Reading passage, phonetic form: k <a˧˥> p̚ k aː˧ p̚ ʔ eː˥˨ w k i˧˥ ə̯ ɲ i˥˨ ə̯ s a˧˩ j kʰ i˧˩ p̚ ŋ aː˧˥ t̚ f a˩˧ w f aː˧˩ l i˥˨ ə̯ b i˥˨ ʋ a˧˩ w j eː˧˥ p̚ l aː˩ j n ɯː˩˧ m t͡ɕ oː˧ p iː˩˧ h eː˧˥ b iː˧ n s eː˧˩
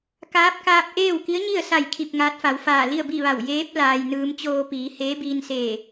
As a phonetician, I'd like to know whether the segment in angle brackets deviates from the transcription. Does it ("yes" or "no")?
yes